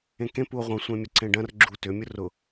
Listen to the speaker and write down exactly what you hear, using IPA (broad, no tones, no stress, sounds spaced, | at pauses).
ẽ k ẽ p u o̯ ʁʷ ɐ̃ sʷ ẽ mʲ ə ǀ ẽ ɖ ɐ̃ r ɡ͡ǁ u t ʏ mʲ ʊ r ʊ